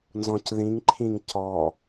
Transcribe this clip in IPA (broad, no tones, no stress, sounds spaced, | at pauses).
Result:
n z ɔ̃ c ð ĩ ŋ ǃʰ ĩ ŋ c ɔ